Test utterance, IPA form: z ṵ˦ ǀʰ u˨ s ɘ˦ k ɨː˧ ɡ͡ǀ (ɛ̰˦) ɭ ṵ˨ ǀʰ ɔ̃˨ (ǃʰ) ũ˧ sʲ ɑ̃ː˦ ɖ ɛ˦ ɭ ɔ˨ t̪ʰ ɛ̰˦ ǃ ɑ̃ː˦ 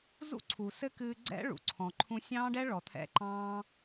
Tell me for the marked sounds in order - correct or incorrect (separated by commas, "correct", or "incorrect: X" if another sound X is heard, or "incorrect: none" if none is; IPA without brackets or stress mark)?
correct, correct